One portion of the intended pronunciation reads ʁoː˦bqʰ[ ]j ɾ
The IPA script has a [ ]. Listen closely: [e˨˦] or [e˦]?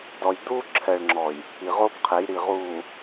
e˨˦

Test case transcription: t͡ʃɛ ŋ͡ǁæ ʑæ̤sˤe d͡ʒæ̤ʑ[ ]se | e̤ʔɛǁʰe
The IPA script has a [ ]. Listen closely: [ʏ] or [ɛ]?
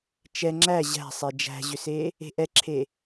ʏ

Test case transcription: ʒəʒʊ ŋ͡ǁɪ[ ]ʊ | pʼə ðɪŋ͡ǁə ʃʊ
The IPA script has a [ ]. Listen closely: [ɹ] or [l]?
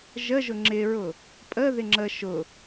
ɹ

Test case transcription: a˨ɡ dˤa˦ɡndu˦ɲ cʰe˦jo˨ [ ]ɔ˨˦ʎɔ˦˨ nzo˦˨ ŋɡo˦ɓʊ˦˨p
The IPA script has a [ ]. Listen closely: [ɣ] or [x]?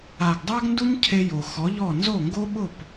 x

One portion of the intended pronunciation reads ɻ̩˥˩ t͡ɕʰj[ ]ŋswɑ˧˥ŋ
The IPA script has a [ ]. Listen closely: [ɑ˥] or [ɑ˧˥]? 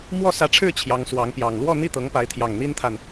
ɑ˧˥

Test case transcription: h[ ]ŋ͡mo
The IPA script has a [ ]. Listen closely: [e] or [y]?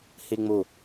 e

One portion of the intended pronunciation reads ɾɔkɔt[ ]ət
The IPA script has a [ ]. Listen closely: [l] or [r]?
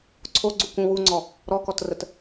r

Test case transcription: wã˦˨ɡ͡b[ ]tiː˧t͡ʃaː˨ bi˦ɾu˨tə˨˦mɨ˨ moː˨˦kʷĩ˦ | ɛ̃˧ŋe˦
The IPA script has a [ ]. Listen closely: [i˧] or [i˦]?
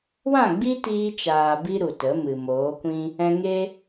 i˦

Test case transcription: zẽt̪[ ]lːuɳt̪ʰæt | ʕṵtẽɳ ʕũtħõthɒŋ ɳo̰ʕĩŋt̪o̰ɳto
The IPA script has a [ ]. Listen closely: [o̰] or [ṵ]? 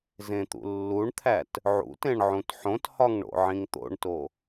ṵ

